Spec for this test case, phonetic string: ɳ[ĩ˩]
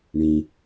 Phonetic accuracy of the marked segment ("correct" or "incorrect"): correct